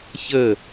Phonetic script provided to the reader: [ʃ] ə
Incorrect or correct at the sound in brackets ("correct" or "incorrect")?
incorrect